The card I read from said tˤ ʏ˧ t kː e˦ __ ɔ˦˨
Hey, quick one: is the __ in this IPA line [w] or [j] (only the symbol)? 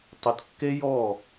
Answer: j